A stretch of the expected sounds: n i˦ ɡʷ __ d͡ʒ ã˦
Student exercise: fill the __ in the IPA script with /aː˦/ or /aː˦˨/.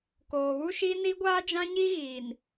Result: aː˦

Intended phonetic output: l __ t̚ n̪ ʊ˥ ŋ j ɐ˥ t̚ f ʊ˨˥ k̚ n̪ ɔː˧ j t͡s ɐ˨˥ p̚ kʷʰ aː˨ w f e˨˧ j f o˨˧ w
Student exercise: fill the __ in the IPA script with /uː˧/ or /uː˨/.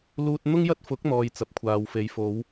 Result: uː˧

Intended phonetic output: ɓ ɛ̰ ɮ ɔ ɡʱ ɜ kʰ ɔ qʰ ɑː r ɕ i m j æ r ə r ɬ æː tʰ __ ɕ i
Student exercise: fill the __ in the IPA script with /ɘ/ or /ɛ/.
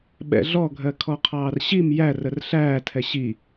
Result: ɛ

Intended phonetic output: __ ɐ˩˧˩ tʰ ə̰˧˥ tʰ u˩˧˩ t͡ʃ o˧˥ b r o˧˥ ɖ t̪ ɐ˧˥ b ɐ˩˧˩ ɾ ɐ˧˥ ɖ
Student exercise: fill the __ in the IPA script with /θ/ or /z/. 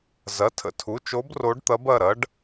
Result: z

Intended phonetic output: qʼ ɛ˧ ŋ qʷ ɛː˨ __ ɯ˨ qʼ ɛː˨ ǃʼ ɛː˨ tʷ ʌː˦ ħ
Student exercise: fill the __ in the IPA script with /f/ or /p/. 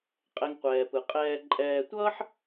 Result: p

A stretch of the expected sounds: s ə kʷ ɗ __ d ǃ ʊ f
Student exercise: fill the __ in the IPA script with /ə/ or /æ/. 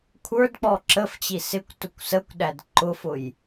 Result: æ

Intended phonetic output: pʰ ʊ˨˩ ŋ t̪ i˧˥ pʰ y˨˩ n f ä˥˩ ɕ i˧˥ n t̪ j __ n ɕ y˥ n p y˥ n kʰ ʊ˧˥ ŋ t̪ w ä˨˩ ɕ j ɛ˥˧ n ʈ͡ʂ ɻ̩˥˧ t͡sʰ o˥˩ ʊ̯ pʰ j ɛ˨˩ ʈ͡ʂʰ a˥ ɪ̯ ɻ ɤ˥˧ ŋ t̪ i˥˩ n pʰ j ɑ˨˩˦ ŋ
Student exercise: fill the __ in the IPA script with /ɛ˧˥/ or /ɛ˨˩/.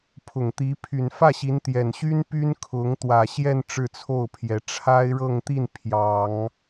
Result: ɛ˨˩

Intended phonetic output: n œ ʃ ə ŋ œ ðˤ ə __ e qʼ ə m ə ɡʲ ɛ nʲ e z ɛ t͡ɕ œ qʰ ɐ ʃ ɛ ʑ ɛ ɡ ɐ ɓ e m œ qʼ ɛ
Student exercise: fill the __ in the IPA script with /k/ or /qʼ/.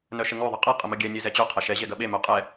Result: qʼ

